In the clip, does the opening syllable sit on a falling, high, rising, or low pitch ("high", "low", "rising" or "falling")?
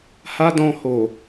high